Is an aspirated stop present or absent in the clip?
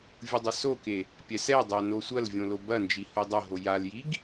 absent